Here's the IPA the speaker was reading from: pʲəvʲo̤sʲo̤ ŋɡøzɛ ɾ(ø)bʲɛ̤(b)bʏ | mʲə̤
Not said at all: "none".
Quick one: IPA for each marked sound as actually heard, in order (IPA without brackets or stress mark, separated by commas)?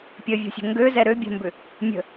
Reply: ø, m